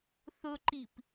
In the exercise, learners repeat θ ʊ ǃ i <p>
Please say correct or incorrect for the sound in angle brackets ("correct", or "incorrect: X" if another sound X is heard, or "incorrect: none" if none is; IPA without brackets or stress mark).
correct